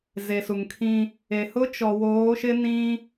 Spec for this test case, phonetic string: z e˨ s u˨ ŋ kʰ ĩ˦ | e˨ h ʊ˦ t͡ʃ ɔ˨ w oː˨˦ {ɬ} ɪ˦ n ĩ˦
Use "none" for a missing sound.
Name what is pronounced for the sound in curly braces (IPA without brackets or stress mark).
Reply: ʃ